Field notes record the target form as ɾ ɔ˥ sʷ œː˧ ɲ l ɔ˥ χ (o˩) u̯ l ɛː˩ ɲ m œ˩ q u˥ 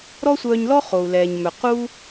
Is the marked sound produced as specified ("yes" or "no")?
yes